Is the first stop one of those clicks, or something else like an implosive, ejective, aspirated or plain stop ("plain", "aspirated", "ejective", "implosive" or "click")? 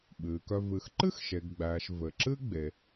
implosive